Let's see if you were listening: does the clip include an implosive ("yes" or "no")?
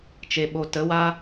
yes